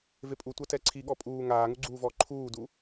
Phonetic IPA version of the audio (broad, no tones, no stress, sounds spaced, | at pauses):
v e pʼ u tʷ a t ɛ ǀʰ i ɠ ɔ pʼ uː ŋ aː ŋ u ɡ͡ǀ uː v ɔː ǃʰ uː d u